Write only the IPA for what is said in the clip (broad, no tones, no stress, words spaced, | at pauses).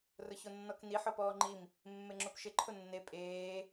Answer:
rʊçonːɔkni ħɔpɔːŋ͡ǃim | mːeŋ͡ǁopʃɪ ǃʰʊnːe pʼeː